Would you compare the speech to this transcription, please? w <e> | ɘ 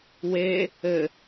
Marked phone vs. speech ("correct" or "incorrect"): correct